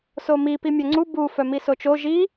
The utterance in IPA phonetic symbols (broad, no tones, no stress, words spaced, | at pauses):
somi pimʲœŋ͡ǀu bu fœmisot͡ʃo ʒi